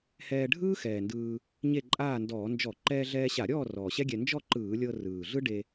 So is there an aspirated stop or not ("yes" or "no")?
no